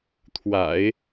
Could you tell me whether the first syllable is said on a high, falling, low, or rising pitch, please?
low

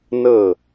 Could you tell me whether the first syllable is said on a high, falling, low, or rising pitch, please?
falling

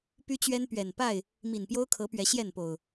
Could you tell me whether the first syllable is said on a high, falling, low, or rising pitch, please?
high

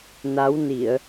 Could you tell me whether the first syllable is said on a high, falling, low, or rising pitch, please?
rising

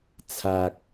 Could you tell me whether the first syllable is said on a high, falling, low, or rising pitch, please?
low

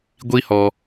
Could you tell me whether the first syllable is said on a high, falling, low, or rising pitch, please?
high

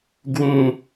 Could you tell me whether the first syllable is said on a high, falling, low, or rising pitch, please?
high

